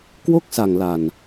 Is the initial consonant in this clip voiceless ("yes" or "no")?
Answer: yes